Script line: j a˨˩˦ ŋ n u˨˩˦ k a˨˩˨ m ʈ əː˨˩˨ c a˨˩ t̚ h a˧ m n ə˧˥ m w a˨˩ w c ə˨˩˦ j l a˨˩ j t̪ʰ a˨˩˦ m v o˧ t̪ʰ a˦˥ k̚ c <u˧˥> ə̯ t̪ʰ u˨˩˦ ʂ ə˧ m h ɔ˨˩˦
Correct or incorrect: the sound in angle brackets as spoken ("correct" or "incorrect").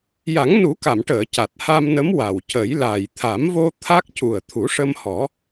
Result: incorrect